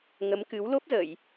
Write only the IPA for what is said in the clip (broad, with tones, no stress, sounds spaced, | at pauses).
ŋ ə˨˦ m k ɨ˨˦ w l o˦˥ p̚ z ə˧˩˨ j